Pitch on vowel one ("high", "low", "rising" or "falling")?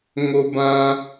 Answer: high